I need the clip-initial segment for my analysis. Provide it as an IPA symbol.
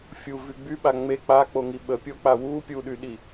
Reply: fʲ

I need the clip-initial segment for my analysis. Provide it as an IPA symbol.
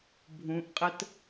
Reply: bʱ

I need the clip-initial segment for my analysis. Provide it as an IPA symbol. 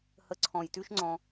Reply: h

